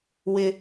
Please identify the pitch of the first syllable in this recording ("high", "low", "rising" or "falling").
high